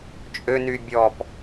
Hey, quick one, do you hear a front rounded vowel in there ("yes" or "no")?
yes